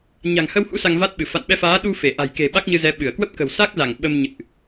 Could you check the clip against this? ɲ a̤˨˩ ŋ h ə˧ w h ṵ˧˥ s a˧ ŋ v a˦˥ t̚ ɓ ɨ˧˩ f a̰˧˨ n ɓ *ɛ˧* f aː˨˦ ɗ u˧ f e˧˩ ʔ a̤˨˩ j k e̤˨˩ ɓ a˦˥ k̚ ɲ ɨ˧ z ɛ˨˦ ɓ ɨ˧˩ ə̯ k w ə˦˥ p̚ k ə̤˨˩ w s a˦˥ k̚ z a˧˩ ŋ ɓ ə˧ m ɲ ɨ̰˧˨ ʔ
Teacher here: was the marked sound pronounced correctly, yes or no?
yes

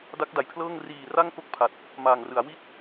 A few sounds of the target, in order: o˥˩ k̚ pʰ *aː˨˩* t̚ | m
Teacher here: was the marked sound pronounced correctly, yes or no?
no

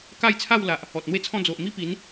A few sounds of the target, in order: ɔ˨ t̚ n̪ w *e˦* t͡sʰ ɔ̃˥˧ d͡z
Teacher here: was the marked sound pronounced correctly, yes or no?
yes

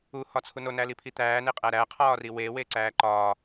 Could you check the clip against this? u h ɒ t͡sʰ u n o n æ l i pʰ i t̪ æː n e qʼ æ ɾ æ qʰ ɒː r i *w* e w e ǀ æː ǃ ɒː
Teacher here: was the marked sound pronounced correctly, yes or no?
yes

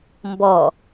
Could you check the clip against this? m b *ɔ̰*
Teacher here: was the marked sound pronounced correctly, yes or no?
no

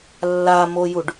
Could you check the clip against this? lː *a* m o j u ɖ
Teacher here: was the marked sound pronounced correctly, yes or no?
yes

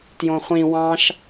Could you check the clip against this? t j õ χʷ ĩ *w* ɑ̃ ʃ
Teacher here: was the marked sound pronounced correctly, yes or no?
yes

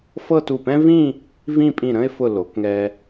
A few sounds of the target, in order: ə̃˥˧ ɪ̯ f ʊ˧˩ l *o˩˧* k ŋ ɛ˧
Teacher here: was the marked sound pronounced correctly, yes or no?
yes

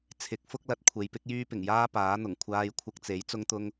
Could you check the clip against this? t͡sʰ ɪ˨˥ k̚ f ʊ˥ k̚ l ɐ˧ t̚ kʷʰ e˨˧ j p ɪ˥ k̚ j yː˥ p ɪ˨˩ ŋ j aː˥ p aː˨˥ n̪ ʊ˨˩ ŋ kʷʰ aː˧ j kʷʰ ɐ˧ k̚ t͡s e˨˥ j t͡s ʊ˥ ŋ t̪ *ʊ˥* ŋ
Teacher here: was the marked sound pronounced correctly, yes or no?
yes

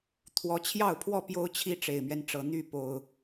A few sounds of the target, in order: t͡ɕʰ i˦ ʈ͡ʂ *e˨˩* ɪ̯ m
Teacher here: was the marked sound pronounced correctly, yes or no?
yes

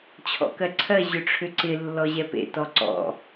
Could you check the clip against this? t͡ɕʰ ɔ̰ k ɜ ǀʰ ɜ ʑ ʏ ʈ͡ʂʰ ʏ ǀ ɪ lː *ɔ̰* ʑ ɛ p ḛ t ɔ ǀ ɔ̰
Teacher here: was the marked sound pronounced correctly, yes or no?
no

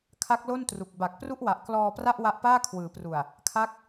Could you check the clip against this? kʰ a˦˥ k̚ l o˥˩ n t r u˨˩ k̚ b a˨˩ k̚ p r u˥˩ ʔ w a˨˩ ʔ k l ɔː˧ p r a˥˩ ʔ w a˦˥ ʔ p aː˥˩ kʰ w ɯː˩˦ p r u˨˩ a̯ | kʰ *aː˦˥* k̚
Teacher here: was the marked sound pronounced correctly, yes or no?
no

